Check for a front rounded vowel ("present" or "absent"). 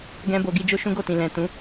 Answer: absent